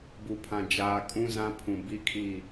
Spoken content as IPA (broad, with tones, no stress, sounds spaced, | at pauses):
b u˨ pʰ ã˨ d͡ʒ aː˨ kʼ ũ˦ z ã˦ pʰ ũ˨ b i˦ kʰ i˦˨